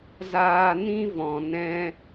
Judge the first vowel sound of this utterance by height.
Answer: low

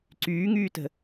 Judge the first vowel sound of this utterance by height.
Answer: high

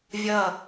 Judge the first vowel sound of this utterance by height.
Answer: mid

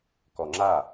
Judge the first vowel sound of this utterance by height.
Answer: mid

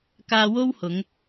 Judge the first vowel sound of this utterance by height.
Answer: low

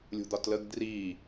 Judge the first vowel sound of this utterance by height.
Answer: high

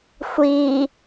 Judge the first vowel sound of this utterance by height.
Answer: high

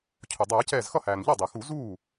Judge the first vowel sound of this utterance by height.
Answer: high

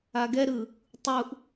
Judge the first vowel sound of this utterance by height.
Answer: low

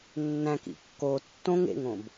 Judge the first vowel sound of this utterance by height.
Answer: low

